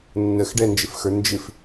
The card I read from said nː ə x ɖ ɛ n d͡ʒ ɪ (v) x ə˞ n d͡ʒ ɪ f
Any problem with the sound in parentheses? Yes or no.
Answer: yes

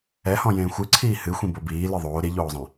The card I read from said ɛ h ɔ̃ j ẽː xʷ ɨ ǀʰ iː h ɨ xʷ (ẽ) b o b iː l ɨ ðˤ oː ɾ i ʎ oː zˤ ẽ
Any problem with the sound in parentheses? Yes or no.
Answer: yes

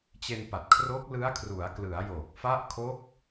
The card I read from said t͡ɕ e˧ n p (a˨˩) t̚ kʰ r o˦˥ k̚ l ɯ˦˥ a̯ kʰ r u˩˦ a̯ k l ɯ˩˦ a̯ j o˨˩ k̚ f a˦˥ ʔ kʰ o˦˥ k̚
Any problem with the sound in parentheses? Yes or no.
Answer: no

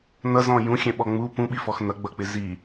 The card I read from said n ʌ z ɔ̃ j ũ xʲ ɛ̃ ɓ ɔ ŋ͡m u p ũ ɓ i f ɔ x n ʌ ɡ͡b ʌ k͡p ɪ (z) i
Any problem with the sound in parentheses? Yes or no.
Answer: no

